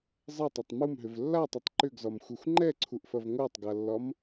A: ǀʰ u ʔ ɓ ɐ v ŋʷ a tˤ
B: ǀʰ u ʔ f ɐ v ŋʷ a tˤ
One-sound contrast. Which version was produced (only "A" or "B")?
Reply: B